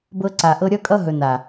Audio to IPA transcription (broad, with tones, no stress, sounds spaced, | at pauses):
b ɤ˧ ǀ a˨ ʔ ɤ˧ ɾʲ ʌ˧ kʼ ʌ˧ ɦ ɵ˨ n a˨